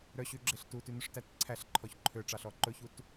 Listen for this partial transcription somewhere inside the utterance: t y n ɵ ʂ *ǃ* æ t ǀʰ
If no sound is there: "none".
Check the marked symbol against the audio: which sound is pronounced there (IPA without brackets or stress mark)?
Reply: t